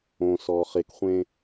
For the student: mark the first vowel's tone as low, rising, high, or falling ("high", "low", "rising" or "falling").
low